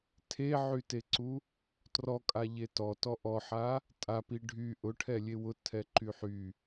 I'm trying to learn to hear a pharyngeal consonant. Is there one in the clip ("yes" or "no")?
yes